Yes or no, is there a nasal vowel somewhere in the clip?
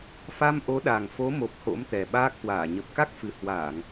no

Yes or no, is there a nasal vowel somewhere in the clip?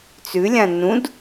yes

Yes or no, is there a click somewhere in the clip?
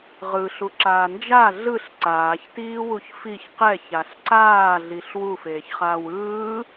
yes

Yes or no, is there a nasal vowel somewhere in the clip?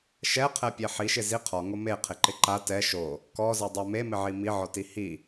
no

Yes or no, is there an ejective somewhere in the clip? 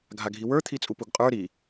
yes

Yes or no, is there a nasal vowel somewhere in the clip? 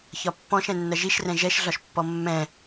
yes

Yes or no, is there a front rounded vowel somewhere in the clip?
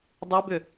yes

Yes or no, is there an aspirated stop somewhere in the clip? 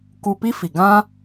no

